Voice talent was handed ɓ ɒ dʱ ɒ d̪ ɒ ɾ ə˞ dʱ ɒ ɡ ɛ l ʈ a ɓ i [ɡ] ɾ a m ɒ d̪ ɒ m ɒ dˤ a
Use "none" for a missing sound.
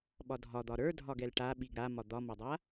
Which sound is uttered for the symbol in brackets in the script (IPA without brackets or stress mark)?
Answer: ɡ